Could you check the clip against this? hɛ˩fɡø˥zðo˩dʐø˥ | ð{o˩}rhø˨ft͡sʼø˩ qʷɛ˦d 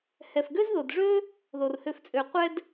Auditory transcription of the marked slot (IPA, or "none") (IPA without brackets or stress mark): o˩